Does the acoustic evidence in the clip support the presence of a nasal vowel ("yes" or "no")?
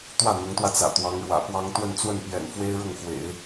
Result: no